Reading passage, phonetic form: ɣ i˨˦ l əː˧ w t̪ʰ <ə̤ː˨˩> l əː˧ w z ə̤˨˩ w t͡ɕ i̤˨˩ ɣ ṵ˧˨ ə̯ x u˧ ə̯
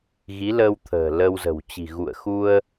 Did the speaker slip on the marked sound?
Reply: no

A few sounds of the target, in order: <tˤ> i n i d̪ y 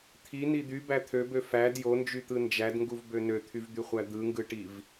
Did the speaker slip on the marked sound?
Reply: yes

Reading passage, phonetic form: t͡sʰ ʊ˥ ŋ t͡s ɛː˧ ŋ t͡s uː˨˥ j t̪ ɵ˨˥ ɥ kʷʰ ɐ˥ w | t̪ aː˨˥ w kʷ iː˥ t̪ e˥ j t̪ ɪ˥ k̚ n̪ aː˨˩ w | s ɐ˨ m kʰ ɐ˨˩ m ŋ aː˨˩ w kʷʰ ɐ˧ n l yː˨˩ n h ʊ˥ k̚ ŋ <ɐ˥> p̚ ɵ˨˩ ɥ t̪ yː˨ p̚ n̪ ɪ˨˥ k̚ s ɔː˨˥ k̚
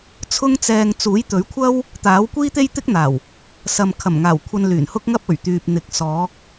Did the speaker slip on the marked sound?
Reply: no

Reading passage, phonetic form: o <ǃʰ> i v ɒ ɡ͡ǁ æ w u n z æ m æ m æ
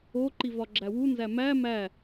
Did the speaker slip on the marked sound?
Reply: yes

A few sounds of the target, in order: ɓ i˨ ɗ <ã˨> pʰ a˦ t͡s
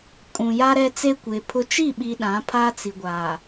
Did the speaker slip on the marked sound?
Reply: yes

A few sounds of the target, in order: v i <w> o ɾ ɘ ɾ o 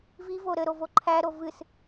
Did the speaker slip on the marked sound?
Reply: yes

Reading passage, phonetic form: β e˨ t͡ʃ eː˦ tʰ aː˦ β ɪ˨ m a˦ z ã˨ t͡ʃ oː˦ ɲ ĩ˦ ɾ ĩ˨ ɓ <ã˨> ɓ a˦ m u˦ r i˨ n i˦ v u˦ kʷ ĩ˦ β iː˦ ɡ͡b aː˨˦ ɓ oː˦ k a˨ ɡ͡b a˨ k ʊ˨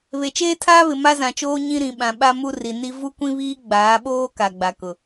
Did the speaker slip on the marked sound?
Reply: no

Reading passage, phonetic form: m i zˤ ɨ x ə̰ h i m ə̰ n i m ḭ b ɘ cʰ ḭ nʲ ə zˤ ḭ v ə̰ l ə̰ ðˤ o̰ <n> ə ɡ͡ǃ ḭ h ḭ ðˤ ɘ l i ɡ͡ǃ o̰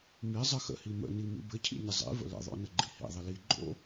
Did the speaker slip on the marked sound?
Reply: no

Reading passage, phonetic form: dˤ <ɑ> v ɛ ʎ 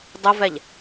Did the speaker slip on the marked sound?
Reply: yes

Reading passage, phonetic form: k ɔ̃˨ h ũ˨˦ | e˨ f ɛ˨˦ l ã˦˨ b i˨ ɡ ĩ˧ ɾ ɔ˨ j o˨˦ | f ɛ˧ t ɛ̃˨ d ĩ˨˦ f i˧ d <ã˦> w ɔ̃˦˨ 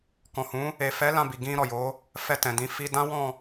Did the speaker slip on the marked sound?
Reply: no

